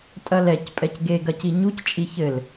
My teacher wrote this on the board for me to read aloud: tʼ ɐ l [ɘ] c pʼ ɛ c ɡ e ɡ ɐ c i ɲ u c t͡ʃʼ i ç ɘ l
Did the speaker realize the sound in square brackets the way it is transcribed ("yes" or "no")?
no